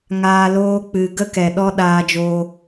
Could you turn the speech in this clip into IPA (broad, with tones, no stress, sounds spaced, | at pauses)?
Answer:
ŋ aː˧ l oː˦ k͡p ɨ˧ ɡ ə˦ k ɛ˨ ɗ ɔ˦ ɗ aː˧ d͡ʒ oː˧